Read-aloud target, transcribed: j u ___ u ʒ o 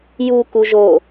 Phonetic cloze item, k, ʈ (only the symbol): k